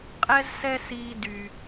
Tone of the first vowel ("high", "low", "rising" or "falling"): high